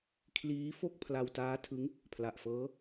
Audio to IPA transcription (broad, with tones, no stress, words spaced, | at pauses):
kʰliː˦˥ fo˥˩k̚pʰla˧wtaː˦˥tʰɯ˦˥ŋ | pʰla˨˩ʔfɤː˦˥